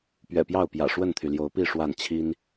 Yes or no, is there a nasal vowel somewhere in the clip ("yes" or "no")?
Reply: no